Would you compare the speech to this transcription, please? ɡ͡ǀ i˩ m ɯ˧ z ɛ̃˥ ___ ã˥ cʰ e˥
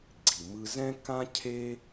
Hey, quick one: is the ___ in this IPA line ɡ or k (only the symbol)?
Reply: k